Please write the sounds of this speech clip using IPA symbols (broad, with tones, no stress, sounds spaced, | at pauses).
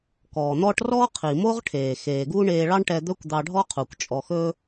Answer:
k ɔː˩ n̪ ɔ˥ ʈ r ɔː˥ qʰ i˩ m o˥ ʁ ʈʰ eː˩ x eː˩ ɡ u˥ ɳ eː˧ ɭ ɑ˥ ɳ ʈ ɛ˧ d̪ ɵ˥ kʷ d̪ ɑ˧ ɖʱ ɔ˥ qʰ u˩ kʷ t͡ʃʼ ɔ˧ x ɵː˥